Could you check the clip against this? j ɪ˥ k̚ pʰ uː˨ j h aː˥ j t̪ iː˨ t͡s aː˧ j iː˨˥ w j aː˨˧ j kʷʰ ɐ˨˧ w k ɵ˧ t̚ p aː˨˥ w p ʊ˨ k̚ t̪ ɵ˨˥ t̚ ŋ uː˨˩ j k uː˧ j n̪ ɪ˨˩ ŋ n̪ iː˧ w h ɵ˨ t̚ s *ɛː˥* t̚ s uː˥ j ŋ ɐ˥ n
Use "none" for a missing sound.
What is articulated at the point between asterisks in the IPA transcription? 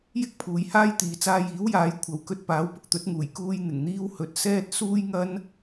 ɛː˧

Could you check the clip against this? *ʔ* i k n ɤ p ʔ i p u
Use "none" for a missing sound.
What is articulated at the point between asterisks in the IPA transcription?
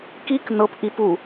k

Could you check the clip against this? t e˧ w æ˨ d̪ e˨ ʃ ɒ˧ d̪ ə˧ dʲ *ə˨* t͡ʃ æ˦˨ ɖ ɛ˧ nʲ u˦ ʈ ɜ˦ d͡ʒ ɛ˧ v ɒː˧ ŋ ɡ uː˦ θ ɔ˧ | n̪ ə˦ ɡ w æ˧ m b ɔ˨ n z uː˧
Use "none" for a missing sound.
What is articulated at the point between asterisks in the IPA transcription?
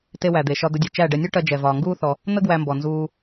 ɯ˨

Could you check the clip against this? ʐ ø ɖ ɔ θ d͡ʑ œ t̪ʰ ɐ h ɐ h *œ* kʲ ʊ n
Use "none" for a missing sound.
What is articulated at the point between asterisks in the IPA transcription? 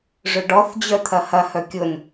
œ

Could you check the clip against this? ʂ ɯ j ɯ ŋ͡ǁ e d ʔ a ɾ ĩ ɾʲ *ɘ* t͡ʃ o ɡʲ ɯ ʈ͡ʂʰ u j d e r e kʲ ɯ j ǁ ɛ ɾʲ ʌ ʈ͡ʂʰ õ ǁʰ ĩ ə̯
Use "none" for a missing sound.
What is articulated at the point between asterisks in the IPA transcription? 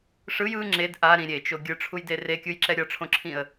e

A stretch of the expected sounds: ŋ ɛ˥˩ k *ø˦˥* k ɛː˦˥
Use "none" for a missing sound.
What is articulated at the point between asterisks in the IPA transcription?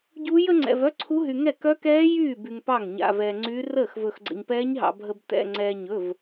œ˦˥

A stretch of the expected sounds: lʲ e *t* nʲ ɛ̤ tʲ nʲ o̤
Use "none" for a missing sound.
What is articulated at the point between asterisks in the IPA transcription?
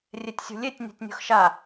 tʲ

